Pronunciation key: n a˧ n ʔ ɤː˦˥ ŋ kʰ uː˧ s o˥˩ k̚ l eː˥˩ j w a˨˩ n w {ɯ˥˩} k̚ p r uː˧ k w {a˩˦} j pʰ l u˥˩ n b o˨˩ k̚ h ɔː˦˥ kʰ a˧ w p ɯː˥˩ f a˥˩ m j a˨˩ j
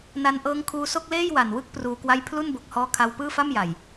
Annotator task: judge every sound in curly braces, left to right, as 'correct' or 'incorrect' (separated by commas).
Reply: correct, incorrect